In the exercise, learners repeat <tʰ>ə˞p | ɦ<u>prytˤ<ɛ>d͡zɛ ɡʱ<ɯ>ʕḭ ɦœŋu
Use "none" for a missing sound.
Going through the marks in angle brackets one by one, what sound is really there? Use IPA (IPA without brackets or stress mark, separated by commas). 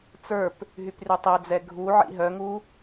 t͡s, y, ɛ, u